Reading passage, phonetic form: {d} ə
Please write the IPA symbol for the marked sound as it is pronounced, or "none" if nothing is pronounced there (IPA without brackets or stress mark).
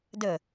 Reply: d